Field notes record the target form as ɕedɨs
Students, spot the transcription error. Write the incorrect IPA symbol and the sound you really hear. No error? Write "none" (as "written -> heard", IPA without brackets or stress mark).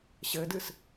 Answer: e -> ɘ